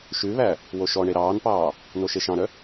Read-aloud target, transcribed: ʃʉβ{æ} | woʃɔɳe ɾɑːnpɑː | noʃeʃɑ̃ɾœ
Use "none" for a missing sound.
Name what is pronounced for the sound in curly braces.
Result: æ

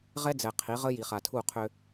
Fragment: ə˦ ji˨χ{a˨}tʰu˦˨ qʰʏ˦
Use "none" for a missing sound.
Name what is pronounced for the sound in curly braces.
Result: a˨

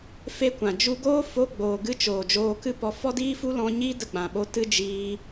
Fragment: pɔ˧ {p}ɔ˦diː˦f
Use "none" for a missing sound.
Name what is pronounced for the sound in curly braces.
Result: f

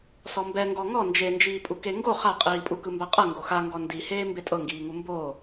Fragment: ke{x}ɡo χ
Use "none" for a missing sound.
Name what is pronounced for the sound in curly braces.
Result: ŋ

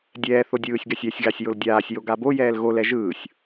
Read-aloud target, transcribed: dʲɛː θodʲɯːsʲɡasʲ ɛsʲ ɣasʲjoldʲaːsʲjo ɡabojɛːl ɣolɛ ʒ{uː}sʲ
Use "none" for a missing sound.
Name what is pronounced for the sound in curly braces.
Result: ɯː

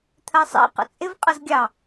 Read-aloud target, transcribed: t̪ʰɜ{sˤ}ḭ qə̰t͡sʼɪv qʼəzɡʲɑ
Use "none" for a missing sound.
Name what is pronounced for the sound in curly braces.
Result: sˤ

